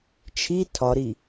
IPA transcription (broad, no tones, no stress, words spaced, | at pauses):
t͡ʃʰi tʰɒɾi